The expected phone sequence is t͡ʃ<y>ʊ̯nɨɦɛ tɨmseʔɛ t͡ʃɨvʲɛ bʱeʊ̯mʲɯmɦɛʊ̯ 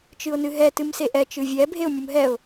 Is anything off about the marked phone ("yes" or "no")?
yes